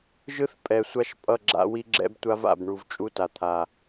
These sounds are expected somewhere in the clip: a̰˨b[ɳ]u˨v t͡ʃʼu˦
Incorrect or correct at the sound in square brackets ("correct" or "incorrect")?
correct